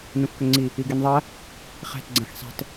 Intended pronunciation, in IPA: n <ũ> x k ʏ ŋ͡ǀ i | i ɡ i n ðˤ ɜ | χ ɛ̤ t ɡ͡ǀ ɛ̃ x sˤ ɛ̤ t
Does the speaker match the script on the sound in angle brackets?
yes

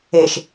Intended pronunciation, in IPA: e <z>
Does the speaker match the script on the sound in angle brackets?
no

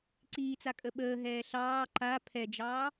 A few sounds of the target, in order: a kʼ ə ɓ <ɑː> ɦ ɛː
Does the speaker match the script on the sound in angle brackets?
no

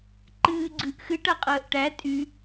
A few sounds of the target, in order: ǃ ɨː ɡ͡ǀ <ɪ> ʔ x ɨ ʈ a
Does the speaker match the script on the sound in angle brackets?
no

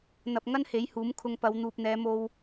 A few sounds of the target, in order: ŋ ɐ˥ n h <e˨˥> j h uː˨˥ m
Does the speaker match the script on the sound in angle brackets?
yes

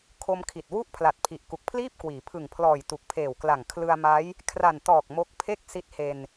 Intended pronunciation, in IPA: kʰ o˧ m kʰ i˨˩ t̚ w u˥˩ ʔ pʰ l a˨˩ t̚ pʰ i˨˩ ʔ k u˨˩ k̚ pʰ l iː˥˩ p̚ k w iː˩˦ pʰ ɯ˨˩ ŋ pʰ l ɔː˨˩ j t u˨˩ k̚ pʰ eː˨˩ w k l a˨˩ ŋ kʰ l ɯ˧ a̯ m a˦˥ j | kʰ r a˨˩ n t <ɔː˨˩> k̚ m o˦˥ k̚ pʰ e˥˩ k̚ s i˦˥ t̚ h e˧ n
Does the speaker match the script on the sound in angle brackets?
yes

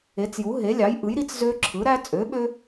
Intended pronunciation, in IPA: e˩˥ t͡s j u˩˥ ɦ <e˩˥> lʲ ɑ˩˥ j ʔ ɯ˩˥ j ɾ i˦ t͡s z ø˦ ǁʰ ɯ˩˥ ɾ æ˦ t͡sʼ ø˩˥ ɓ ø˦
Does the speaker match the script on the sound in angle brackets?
yes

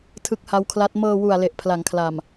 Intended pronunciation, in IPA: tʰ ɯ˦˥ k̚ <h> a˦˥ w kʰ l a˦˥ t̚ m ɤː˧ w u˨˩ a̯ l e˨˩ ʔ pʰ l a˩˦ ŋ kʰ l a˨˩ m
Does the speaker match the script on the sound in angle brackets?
yes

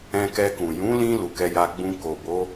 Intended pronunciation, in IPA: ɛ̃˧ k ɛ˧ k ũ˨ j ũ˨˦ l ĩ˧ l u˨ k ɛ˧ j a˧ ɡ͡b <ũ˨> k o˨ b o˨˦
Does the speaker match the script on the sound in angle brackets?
no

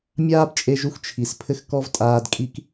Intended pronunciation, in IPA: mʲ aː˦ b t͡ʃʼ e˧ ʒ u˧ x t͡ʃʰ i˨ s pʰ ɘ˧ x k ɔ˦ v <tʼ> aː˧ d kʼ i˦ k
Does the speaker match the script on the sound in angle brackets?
yes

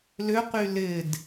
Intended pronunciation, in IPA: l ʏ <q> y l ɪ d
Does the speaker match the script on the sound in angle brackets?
yes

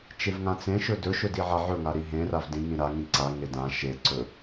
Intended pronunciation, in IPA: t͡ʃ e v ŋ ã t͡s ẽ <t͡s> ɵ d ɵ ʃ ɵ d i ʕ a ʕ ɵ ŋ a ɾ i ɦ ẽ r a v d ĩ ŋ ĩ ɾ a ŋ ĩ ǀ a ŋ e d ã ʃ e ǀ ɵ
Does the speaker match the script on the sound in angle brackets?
no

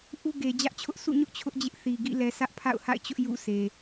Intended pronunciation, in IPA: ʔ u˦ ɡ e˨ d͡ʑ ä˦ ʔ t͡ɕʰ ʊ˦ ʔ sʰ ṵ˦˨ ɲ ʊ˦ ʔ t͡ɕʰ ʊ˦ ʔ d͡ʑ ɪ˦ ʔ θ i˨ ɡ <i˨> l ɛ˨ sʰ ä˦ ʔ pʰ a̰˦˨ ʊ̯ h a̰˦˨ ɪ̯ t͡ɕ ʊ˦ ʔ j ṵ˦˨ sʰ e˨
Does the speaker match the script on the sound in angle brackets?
no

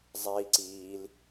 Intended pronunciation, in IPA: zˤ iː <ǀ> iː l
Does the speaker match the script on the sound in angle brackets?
yes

